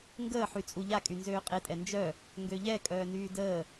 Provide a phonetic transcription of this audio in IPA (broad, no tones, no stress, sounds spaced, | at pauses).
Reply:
ŋ ɡ əː ħ y t͡sʼ u ʎ a kʼ y n z øː qʼ e tʼ ɛ n d͡ʒ œ | ŋ ɡ ø ʎ ɛ kʼ œː n yː d əː